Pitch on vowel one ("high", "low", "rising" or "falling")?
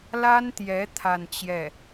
high